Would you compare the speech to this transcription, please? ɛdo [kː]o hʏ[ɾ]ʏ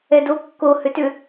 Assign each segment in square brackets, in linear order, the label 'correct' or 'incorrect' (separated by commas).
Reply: correct, incorrect